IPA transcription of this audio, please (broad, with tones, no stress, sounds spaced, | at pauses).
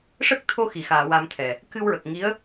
ʂ ə˦˥ k̚ t̪ʰ o˧ x i˨˩˨ x aː˨˩˨ w a˧ m t̪ʰ ɛ˨˩ | k ɨ˧ w ɹ ə˨˩ k̚ ŋ i˧˥ ə̯